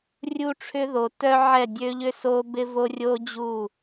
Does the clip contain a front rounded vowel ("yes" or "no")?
yes